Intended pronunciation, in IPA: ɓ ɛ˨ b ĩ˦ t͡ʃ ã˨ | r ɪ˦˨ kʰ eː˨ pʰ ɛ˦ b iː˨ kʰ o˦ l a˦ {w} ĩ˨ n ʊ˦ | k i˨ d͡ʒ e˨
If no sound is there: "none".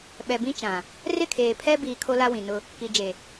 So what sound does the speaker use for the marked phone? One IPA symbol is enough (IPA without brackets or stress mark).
w